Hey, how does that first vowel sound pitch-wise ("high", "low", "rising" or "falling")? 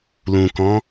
low